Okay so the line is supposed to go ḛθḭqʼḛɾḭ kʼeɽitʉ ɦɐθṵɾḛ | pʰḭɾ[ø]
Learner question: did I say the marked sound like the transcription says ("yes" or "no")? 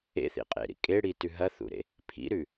no